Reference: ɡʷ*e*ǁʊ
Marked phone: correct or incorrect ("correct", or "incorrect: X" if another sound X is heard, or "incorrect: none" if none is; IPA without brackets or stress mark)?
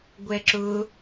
incorrect: ɛ